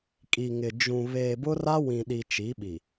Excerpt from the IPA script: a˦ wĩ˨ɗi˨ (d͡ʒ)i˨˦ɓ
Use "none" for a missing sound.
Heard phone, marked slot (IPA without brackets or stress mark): t͡ʃ